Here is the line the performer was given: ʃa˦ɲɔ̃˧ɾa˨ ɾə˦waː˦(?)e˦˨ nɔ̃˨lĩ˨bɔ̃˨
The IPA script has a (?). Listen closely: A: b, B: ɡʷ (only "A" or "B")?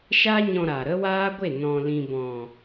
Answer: B